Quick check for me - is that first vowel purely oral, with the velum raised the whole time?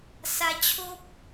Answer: yes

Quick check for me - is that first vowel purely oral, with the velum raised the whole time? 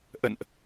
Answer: yes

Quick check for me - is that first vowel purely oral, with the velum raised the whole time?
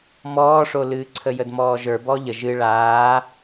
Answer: yes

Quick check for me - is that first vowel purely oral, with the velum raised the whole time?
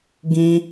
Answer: no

